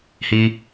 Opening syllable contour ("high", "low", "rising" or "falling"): high